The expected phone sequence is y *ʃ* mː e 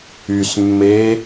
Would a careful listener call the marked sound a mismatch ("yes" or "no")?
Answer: yes